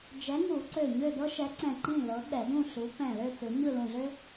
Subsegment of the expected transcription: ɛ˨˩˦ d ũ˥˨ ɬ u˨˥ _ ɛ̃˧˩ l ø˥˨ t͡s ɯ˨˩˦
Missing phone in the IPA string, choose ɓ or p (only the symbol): p